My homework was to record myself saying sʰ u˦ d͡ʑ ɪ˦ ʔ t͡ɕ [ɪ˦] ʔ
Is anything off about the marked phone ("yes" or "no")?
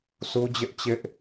no